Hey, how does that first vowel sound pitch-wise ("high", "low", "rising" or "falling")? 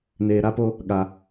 low